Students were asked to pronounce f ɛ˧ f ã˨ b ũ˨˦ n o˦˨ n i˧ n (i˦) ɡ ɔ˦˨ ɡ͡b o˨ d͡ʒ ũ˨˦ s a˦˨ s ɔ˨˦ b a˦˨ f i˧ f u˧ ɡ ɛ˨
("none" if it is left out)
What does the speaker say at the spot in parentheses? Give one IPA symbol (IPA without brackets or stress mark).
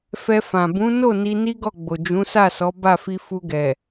i˦